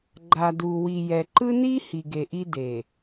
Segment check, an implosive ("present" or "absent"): absent